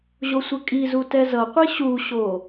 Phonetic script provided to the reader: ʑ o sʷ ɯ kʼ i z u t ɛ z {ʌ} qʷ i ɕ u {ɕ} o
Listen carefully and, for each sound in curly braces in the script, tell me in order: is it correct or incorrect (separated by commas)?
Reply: correct, correct